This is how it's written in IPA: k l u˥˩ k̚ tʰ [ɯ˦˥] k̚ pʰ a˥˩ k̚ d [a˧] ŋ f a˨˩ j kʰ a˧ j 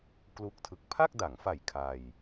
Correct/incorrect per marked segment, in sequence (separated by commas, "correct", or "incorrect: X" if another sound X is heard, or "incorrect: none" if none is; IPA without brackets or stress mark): correct, incorrect: a˩˦